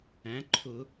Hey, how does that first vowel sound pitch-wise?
rising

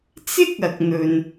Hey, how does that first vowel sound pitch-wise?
high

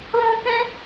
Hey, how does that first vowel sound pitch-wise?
high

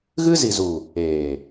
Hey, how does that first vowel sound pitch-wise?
high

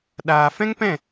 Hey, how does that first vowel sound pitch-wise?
low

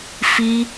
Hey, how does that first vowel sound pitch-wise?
high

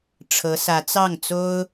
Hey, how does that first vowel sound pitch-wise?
rising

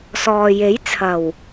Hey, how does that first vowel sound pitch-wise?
low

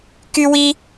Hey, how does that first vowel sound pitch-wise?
high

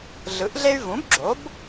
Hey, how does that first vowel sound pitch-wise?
rising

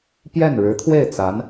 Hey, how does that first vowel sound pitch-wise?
falling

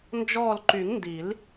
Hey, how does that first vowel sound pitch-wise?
falling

